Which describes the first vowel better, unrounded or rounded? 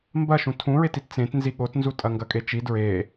unrounded